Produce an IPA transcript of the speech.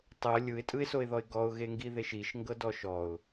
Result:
tˤ ɤ lʲ ɯ ɪ̯ tʼ ɯ ɪ̯ s o ɪ̯ ð ɔ ɪ̯ ɡ ɔ ʊ̯ ɣ e ŋ ɡ i ð e ʃ i ʃ ŋ ɡ ɤ d ɔ ʃ ɔ ʊ̯

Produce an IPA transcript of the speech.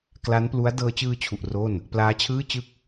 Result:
k l a˦˥ n p l u˦˥ a̯ d ɤː˧ t͡ɕ ɯː˧ t͡ɕʰ u˨˩ ʔ r o˥˩ n | p l aː˦˥ t͡ɕʰ ɯː˥˩ t͡ɕ ɯ˥˩ k̚

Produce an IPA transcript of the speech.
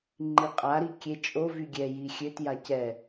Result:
ŋ͡ǃ i qʼ a ɾ i kʲ e t͡ʃʼ o v y ɡʲ ɛ j i xʲ ø t j a c ɛ

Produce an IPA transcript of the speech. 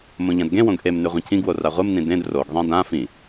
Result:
m õ ʎ ã d ɡ ẽ w õ ɡ ʔ e m n ʉ ʁʷ ẽ cʰ ĩ ɡ w o r a ʁʷ ɨ m n ĩ d ẽ d r o ɡ ðˤ ẽ d ã f ĩ

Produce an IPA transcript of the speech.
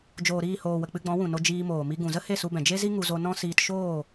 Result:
d͡ʒ oː˨ ɾ iː˦˨ h oː˨ w ə˨ k͡p ɨ˧ ɡ͡b ɔ̃˨˦ w ũ˨ n o˧ d͡ʒ iː˧ m oː˨ m i˧ ɡ ũ˨ z ə˦ h e˦˨ s u˧ b ɛ̃˨ d͡ʒ e˦ z i˦ ŋ u˧ z o˧ n ɔ̃˦ s iː˧ t ʃ oː˦˨

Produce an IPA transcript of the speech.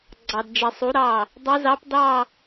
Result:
ɡ͡ǀ ɑ˨ d d͡ʒ ɛ˨ sˤ u˨˦ ɾ ɑ˥˩ | dˤ ɛ˦˥ z ɑ˦˥ p d ɑ˥˧

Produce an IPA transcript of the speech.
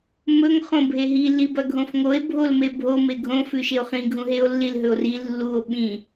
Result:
m ɵ ŋ χ õ bʱ e ɦ i l i b ɐ ɡʱ õ f ŋ o e̯ bʱ o l m e bʱ o m e ɡʱ õ f ʉ ʃ e o̯ χ ĩ ɡʱ ũ ɦ e o̯ lː i l ɦ ɵ o̯ r i lː u o̯ ɓ ĩ

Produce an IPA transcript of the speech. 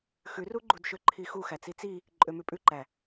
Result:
x ʉ r u ɡ͡ǃ u d ʃ ø ǃʰ i x u x æ t͡s i t͡s i | ǃʼ ø m ʉ pʼ ʉ ǃ æ

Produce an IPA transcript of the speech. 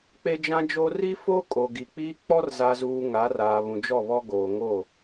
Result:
k͡p e˦ d͡ʒ ã˦ d͡ʒ o˦ r i˦ f o˦ kʼ o˨ ɡ i˨ k͡p iː˦ k͡p ɔ˦ r z a˨ z uː˨ ŋ a˨˦ r aː˨ β ũ˨ d͡ʒ ɔ˦˨ β ɔ˦ ɡ oː˨ ŋ o˦˨

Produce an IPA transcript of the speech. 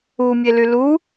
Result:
u mʲ e l y l u

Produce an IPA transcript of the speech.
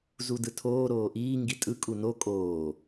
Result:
z u d ɯ tʰ oː ɾ oː ʔ iː ŋ ɡ i tʼ ɯ kʼ u n o kʼ oː

